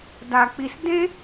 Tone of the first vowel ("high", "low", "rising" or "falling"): low